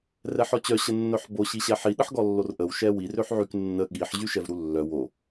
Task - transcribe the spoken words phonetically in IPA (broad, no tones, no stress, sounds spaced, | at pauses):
r ɛ ħ ɔ t͡ɕ œ ɕ ə nː œ ħ b o ɕ i ɕ ɛ ħ i ɗ ə ħ ɡ ɔ lː o r ʔ ə w ʃ ɛ w i r ø ħ ʕ y k nː ə ɠ i ħ ʑ y ʃ ɛ v ɾ u lː œ w o